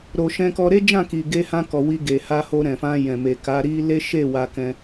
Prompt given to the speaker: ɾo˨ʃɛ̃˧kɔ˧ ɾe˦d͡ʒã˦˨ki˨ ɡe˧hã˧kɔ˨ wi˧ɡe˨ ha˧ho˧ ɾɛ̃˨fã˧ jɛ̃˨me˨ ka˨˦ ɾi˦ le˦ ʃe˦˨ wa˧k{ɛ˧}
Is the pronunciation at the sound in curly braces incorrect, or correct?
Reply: incorrect